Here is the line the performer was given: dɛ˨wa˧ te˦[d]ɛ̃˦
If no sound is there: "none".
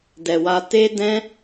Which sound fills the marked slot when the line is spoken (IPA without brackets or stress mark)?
d